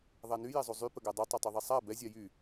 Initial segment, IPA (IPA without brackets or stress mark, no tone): ðˤ